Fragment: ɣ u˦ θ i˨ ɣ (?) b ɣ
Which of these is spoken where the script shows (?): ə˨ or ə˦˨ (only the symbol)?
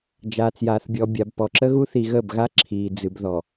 ə˦˨